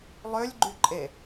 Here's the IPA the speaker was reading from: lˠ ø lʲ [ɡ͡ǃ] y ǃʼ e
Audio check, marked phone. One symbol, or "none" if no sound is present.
ɡ͡ǃ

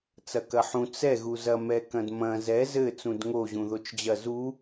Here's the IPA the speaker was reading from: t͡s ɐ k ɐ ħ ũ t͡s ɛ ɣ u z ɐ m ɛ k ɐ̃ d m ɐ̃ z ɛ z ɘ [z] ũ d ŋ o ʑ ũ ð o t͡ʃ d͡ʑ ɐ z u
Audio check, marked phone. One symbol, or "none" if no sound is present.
t͡s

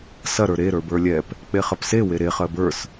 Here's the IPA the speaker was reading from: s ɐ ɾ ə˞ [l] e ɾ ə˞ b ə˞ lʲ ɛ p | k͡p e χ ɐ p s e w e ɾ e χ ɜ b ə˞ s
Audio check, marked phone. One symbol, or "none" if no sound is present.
ɾ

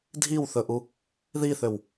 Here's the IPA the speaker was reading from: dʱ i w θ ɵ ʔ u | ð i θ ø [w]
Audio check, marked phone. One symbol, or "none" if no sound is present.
w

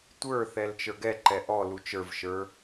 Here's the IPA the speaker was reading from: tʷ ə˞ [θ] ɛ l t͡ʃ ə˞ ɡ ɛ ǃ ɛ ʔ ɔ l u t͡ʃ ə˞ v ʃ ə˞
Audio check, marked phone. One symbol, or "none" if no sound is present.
θ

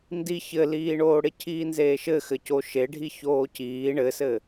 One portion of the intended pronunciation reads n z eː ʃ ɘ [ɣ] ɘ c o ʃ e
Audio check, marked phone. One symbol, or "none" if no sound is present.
x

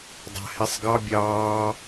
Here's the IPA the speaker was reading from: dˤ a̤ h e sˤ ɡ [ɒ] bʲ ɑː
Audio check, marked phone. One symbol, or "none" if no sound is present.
ɑ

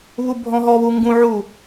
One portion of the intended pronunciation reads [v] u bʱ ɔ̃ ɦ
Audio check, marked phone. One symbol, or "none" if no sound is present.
β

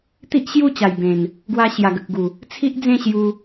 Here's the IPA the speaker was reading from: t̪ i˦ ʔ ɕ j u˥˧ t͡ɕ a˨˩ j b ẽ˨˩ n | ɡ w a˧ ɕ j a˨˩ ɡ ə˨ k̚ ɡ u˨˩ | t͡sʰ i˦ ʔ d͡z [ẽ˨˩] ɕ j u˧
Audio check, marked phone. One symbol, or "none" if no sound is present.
ẽ˥˧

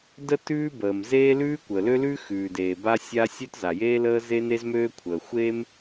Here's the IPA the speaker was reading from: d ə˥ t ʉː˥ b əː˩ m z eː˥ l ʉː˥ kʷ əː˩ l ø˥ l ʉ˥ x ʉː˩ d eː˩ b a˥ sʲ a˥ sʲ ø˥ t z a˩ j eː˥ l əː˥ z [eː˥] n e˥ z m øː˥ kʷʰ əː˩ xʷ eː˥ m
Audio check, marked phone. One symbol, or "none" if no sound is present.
e˥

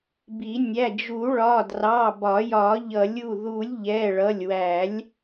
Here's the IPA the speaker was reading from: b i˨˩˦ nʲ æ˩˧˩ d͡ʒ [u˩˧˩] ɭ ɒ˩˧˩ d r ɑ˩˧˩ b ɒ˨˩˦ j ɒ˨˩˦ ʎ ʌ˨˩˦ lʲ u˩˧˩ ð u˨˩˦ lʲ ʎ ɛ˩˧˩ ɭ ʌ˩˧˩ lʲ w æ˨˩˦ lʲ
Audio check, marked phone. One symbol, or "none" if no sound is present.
u˨˩˦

